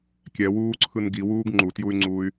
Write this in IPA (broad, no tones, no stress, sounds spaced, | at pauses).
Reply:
kʲ ɛ w uː ǀʰ ɯ n ɡ i w uː ɡ ŋ͡ǃ u t j u y̯ ŋ͡ǀ uː y̯